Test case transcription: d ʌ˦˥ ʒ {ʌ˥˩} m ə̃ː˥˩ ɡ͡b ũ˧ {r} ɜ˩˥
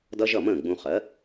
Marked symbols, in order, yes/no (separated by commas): yes, no